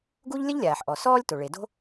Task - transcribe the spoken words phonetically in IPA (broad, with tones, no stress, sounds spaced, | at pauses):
ɡ u˥ ʎ lʲ ə˥ ʎ lʲ aː˩ ħ ʔ ɔ˩ s ɔː˥ lʲ t o˩ ɭ e˩ d o̤˥